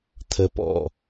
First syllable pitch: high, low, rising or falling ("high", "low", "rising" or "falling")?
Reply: low